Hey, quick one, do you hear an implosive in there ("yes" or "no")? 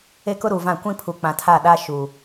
yes